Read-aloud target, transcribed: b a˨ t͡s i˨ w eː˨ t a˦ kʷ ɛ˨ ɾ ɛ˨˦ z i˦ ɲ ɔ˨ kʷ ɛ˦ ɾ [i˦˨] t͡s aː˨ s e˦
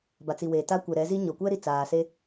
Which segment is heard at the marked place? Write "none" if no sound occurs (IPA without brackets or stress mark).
i˨